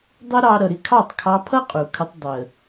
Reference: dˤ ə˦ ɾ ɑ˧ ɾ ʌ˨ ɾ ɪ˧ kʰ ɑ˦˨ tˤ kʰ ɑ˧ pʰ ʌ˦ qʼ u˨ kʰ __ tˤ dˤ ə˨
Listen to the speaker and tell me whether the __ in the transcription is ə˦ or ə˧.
ə˧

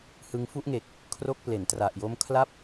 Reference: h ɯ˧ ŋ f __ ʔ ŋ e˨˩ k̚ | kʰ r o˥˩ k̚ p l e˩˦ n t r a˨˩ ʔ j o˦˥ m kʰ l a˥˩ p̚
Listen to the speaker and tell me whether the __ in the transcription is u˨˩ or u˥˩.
u˥˩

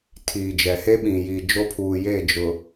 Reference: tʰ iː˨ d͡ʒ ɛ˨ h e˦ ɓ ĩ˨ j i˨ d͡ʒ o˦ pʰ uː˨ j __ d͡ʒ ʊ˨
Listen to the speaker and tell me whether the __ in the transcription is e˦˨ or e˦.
e˦˨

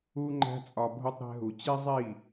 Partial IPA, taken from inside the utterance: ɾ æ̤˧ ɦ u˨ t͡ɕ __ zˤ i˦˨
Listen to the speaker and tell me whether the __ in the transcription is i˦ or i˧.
i˦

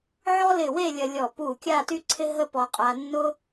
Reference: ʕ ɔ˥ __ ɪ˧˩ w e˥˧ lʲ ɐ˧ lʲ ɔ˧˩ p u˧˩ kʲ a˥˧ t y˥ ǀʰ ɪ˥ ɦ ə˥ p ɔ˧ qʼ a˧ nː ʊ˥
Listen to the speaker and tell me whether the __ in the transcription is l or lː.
l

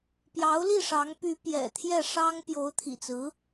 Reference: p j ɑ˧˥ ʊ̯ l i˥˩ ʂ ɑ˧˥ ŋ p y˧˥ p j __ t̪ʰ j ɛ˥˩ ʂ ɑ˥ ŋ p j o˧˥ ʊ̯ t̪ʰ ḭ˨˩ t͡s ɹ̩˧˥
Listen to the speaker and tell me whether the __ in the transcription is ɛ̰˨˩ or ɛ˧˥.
ɛ̰˨˩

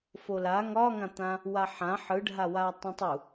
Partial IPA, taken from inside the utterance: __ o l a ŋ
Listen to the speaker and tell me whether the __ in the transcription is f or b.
f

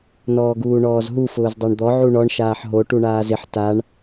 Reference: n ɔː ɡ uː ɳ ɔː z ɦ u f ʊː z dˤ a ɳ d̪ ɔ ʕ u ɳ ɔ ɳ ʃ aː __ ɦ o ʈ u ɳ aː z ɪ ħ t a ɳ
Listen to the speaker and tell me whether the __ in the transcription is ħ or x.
ħ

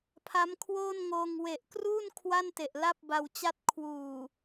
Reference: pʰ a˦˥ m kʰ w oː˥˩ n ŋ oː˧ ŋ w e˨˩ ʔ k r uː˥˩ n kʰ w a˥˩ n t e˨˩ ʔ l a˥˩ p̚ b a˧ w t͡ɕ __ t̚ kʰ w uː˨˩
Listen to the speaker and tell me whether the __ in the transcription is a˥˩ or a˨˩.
a˥˩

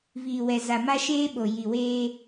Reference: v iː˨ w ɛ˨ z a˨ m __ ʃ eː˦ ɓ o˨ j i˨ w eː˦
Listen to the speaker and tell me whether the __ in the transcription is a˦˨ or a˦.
a˦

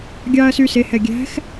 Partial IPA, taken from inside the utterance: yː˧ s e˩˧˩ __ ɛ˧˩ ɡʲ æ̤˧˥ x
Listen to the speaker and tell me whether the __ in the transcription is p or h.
h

